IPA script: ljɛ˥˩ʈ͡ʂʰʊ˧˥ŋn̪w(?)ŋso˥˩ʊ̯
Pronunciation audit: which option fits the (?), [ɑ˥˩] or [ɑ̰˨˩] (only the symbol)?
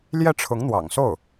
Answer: ɑ̰˨˩